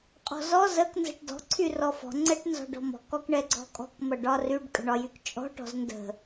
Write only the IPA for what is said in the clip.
qʼɔ̤zɔ zək nzə̤ʈdɔ̤ ǀʰyrɔfɔ̤ ŋ͡ǀɛʈnzɔ̤ɖɔ̤mɔ̤k ɔkɳɛɡ͡ǀɔ̤kʼɔ̤k mʌɖɒryɖ kʼə̤ɳɒjykt͡ʃʼɔ̤ ʈɔ̤zndə̤

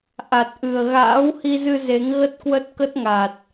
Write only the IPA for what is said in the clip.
ʔa˨˩t̚ʔɨ˨˩ə̯ ɣa̰ː˧˥whi˧zɨ˧ ze˨˦ŋ ɣə˦˥t̚kwə˦˥t̚ kə˦˥t̚ŋa˨˩t̚

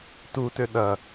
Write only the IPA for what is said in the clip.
tutø ɗɐ

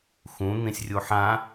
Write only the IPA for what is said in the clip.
xũ n̪ĩsʲrʲuħã

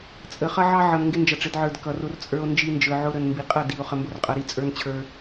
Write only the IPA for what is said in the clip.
t͡sʼə˨χʌ˦ʕɑ˦ ʕʌ˨n ŋɡɪ˦nd͡ʒʌ˨ʈ͡ʂɪ˨˦dʕə˞˨d kʌ˨r ʊ˦rt͡sʼə˞˦o̯ nd͡ʒi˦nd͡ʒə˞˨ʕʊ˦ ɾə˨nmbi˨qʼʌ˦˨ di˨o̯ χə˨mbʊ˦r qʼʌ˨ɾi˦ t͡sʼə˞˦nt͡ɕʰə˞˦

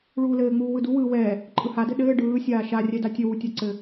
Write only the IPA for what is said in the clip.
ɭuːlɘːŋ͡muː wɯduwɯː wɛː | ǃʼɯhadɘ ɗɘː ɖɯː sʲaːʃa rʲɛdatʲɘwu tʲaǀɘ

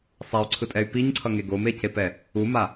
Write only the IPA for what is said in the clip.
sˤay̯ǀʰɯtʼɛy̯ piɲǀʰʌŋe ɡomecepɛ | uma

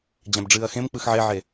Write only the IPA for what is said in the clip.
d͡ʑæ̃bɖ͡ʐɨːɐ̯xẽm k͡pɯxʕeʕe

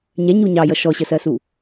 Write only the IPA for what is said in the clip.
ɲɛɲu ɲɑjʌ ʃɔɕəsɜsu

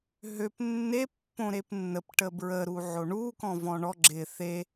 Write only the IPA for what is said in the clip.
ɦøp nːe pːõɾepnːəp ʈəbɹə ɾuʕoɳu kɔ̃vɔ̃ɳɔ ɡ͡ǁɪ θe

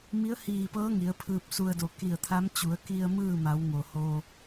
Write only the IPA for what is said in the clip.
mi˧˥ə̯hiː˧˩pɤː˧˥ ŋi˩˧ə̯pʰɯː˧p̚su˧ə̯do˧˩ ki˧˩ə̯t̪ʰa˧˥m t͡ɕu˩˧ə̯ ki˧ə̯ mɯː˥˨ma˩˧wŋo˩ho˧

